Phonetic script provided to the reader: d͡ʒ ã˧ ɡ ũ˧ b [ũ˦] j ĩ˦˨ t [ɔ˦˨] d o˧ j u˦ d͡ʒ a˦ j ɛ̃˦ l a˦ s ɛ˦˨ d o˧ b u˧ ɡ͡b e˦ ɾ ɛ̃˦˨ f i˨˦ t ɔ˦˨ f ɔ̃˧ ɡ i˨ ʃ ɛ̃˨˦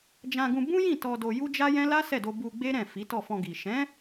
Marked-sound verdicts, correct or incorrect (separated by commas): correct, incorrect